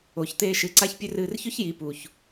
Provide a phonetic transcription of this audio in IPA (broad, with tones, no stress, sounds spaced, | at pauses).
o˨ ç t̪ eː˧ ʃ ɨ˨˦ ǀ a˦ ç pʲ ɵ˦ r ɨː˧ r ç ɵ˦ ç j i˨˦ p u˧ ç